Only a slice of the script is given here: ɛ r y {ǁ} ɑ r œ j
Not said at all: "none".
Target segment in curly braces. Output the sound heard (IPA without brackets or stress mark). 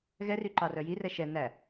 ǃ